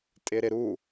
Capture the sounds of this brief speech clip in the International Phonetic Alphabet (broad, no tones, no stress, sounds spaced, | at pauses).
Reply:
tʼ ɪ ɾ ɪ ɾ u